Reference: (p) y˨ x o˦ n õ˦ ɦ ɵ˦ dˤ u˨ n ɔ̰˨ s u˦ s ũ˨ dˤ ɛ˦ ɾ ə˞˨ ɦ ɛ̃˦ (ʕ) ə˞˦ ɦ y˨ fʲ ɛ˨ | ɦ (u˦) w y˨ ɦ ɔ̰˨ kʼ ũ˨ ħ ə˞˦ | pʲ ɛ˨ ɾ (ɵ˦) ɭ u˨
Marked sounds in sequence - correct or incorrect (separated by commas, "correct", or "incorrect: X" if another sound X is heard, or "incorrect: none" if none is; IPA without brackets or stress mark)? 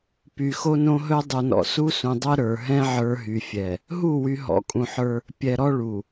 correct, correct, incorrect: u˦˨, incorrect: ɔ˦